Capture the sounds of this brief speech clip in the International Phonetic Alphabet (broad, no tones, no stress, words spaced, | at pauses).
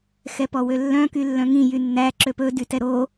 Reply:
xɛpɔwølːœ̃ kylːœ̃ŋĩ jynːæ ǁøpɵ dytɛɾo